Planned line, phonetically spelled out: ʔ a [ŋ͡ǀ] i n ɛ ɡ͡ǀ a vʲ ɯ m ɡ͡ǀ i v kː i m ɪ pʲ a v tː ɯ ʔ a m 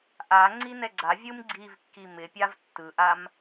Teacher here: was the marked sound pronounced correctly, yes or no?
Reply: yes